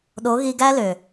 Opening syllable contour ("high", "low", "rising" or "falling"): rising